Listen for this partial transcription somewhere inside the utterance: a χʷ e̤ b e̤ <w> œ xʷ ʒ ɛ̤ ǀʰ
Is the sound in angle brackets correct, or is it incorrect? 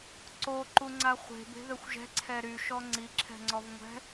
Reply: incorrect